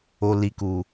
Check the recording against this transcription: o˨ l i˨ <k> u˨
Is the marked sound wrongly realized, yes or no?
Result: no